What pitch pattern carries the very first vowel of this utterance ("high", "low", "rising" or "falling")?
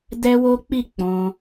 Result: high